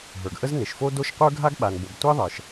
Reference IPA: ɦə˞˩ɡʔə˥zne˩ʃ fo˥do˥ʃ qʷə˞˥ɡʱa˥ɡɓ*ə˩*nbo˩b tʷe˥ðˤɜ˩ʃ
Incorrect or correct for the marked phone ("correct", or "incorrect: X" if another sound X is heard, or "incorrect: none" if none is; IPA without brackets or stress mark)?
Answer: incorrect: a˩